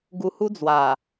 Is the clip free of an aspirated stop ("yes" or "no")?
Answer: yes